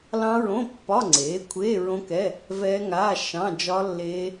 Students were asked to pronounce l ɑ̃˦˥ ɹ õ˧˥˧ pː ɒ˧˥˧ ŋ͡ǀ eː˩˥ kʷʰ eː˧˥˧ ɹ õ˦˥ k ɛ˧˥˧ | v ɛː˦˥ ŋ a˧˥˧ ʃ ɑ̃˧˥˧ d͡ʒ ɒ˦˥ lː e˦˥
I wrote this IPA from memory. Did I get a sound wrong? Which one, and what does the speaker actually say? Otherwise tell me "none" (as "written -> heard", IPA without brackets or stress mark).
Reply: e˦˥ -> eː˦˥